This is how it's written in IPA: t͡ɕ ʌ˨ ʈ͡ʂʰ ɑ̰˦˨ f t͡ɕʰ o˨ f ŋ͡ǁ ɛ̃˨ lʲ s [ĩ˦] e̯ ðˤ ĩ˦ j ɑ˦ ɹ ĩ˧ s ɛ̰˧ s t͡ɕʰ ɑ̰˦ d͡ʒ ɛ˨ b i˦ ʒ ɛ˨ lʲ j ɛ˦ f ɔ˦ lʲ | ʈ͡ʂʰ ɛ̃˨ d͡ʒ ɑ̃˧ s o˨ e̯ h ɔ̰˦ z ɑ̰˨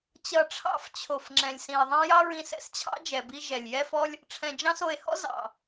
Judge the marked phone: incorrect: ĩ˨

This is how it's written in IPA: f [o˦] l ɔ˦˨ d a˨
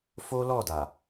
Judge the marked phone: correct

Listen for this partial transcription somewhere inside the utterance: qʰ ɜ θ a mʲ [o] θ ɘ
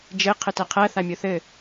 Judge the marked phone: correct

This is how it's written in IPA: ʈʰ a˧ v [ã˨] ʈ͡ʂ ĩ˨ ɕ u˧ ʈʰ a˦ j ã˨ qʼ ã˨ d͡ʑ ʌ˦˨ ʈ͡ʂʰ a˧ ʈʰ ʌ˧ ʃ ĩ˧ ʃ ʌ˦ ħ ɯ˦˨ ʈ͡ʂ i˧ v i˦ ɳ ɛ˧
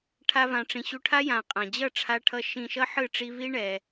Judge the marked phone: correct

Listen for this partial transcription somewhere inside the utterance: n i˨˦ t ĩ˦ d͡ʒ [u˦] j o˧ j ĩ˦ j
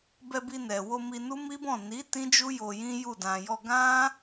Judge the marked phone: correct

